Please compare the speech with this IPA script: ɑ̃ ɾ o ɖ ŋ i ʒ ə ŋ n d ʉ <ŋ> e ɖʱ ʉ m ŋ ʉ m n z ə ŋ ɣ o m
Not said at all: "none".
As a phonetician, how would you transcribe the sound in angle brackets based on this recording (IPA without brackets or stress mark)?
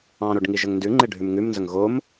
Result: ŋ͡ǃ